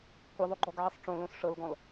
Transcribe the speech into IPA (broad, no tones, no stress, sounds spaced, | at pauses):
kʷ i ðˤ o ɡ͡ǃ ɔ ɡ ʕ ɛ sˤ ʈ͡ʂ õ l õ s ʂ ɤ l ɡ ɔ̃ l